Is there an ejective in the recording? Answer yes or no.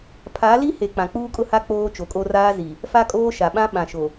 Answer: yes